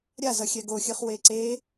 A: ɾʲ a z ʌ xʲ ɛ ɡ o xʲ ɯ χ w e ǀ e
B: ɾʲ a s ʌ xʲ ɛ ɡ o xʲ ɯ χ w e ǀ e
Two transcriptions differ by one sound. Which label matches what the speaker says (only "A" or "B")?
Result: A